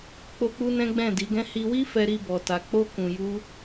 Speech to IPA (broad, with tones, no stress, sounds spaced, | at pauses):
k͡p o˦ k͡p u˦ n ɛ̃˦ ɡ͡b ɛ̃˦˨ d i˨˦ ɡ ɛ̃˦ h i˧ w i˦ f ɛ˦ ɾ i˦ b ɔ˧ t a˧ k͡p o˦ k ũ˧ j u˦